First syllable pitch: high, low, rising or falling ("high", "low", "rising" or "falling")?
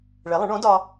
rising